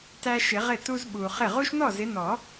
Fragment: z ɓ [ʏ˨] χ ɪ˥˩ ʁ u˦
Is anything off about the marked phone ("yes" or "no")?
yes